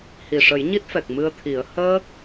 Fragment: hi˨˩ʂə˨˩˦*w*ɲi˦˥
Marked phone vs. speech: incorrect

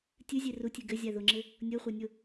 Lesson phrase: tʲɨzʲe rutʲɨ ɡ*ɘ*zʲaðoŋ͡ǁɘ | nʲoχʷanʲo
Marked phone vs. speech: correct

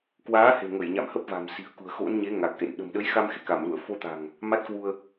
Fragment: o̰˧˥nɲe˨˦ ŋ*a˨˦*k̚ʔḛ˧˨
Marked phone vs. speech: incorrect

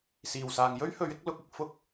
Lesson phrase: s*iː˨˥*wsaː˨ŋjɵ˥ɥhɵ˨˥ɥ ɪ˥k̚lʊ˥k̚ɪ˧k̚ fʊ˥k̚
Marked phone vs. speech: incorrect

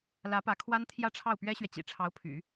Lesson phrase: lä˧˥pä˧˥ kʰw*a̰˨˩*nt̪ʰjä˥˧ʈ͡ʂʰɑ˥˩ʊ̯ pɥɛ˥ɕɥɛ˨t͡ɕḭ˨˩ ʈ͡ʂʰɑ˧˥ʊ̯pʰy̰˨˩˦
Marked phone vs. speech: incorrect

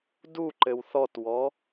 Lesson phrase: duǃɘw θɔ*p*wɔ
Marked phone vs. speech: incorrect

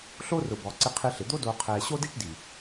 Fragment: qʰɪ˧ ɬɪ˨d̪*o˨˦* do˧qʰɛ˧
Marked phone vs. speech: incorrect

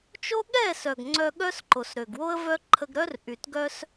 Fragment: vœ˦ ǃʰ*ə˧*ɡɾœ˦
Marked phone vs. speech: correct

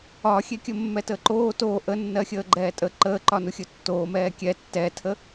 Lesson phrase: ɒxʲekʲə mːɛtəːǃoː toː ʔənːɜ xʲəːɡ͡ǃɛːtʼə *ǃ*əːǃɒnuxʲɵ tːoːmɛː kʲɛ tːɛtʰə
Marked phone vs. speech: correct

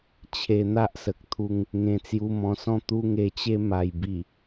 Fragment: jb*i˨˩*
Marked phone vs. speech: correct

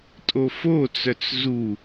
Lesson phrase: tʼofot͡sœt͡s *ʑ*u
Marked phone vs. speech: incorrect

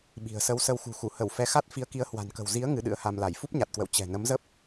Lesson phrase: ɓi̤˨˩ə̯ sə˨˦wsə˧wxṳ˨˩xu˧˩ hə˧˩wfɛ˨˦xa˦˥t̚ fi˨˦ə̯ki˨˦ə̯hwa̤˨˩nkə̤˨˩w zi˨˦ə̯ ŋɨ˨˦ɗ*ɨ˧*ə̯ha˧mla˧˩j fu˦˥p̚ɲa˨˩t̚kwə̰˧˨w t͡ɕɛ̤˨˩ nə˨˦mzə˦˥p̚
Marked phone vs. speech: incorrect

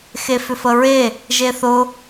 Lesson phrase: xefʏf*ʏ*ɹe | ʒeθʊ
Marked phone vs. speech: incorrect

